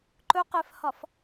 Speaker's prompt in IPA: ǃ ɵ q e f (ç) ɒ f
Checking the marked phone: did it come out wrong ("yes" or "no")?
yes